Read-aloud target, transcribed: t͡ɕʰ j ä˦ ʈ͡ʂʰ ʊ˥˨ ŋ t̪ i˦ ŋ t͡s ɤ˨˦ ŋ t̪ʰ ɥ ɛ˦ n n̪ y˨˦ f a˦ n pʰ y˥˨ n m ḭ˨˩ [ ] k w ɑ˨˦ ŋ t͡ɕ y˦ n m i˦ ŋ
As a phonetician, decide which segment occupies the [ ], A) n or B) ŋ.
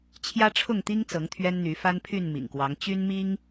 B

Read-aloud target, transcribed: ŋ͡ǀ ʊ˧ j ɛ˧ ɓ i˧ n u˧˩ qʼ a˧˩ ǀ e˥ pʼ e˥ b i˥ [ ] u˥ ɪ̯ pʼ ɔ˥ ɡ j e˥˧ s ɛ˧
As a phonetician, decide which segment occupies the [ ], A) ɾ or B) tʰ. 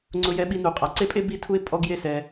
B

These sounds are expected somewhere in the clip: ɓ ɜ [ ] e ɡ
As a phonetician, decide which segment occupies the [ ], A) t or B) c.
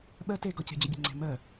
A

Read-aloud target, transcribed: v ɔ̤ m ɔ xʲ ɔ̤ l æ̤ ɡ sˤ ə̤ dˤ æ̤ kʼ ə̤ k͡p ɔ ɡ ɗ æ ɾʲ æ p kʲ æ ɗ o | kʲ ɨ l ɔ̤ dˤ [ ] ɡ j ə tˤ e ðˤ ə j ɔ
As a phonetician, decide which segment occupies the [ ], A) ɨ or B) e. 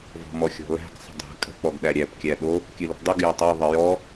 A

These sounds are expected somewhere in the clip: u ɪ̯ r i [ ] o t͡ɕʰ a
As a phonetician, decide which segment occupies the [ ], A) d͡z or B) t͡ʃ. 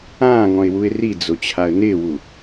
A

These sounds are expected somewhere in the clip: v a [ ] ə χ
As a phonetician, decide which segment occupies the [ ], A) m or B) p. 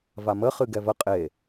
A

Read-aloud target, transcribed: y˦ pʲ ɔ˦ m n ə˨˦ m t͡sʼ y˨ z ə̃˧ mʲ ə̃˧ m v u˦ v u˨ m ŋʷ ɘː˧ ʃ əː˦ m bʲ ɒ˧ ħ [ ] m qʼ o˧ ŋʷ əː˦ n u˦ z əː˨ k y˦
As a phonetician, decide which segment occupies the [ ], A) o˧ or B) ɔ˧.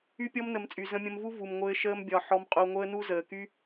B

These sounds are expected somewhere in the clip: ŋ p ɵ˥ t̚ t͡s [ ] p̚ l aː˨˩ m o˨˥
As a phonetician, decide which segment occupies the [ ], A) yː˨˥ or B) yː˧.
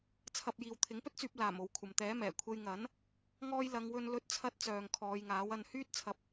B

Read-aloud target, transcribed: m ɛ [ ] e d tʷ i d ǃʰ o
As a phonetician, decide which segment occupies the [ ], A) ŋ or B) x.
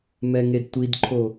A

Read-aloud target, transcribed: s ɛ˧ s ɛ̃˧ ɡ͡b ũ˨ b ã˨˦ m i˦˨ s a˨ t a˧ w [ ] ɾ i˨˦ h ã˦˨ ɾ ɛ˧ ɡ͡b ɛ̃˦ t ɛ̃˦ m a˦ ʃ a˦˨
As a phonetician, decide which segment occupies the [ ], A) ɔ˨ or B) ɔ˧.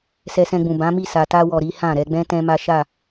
A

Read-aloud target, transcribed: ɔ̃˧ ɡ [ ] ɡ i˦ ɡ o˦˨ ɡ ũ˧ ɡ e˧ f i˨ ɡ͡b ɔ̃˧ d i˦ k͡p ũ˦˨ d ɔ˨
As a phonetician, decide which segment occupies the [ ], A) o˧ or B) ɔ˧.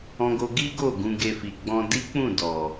A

